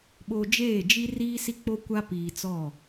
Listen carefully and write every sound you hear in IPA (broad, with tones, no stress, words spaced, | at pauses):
ɓo˨ d͡ʒeː˦˨d͡ʒi˦riː˦ si˦k͡po˦kʷa˦piː˨ t͡sɔ˦˨